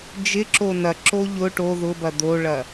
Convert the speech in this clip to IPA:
d͡ʒɪǁo nɐǁo ʎʊ ʈo ðʊbɐ d̪oɭɐ

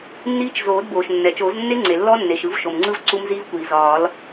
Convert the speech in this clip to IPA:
nːiː˦˥t͡ʃzoː˨˩˦dboː˩ʃ nːɛ˩t͡ʃoː˨˩˦znːe˦˥ŋ͡ǀe˩ lːɔ˦˥nːe˩ʃ ɯ˨˩˦vʃo˩mŋ͡ǀɯ˦˥v ǀu˦˥mziː˦˥vkʷiː˩ zɒː˨˩˦l

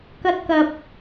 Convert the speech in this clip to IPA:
kɐ˥t̚kɐ˧p̚

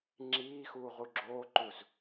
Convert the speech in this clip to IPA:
ŋ͡ǁiːxuː ʁuɡ͡ǁoːǃuz

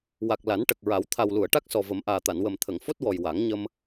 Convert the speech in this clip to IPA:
wa˨˩k̚ la˨˩˦nʈə˨˩k̚ɹa˨˩˦w t̪ʰa˨˩wlu˨˩˨ə̯ʈa˦˥k̚sɔ˨˩ və˨˩˦mʔaː˨˩t̪a˨˩˨n wə˨˩mt̪ʰə˨˩˨ŋfo˦˥t̚wɔ˨˩j wa˨˩˦ŋɲə˧m

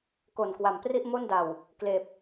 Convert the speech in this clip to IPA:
ko˨˩n kwa˩˦mpri˥˩ʔmo˥˩nda˨˩w | kleː˨˩p̚

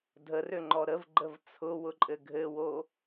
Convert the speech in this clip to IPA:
dʱərøŋ͡ǃɔ ɾəvɡ͡ǃəv t͡sʰʊwʊǃʼɘ ɡʱɘwo

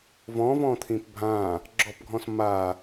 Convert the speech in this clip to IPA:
vɔ̃ vɔ̃t̪ʰĩpbʱã | ɡ͡ǁɔpɡʱɔ̃sma

